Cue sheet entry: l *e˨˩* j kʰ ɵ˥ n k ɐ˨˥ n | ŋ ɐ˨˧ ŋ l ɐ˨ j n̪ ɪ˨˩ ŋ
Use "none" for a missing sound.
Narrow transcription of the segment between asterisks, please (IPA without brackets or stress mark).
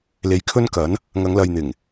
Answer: e˨